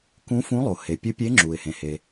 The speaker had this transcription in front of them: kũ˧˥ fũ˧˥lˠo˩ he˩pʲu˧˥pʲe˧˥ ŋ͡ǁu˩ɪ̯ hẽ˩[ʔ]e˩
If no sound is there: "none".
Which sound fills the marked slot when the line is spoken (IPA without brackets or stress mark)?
h